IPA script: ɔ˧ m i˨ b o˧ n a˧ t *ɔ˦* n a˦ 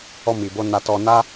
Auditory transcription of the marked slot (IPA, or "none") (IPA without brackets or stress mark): ɔ˧